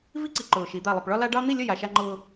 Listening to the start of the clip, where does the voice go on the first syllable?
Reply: high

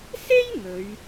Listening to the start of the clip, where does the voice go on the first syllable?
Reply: high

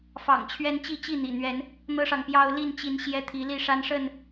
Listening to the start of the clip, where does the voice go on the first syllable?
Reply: low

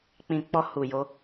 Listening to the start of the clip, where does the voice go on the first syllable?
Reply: low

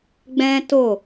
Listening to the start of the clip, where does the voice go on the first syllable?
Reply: high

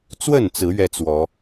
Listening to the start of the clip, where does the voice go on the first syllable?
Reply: falling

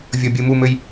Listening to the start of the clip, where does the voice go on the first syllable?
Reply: low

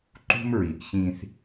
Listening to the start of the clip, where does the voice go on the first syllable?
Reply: high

